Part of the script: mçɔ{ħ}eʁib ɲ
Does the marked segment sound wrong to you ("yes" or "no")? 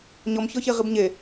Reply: yes